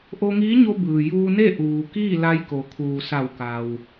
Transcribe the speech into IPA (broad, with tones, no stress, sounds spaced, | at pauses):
ʔ o˧ ŋ iː˧˥ ɲ o˧ b ɯː˩ j uː˧ n e˥˨ ʔ uː˩ k iː˥˨ l a˧ j k o˩ kʰ uː˩ s a˧˩ w k a˩ w